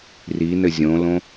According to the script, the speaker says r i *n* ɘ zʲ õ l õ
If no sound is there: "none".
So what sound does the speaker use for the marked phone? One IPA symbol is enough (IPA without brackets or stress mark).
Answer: n